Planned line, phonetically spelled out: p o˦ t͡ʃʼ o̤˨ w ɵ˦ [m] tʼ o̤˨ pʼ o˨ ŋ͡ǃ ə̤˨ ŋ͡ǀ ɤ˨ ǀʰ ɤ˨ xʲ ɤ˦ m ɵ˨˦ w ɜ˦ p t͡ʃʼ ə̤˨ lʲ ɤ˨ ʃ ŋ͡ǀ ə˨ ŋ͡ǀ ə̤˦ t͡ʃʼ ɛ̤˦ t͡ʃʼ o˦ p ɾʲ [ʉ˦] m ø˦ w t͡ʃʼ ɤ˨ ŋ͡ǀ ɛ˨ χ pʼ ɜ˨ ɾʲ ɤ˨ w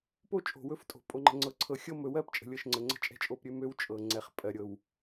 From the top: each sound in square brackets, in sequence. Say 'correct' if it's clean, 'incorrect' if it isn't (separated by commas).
incorrect, incorrect